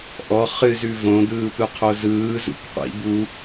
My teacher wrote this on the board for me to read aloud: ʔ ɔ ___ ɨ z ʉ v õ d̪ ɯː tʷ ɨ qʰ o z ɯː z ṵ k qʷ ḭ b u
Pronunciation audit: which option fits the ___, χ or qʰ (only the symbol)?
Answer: χ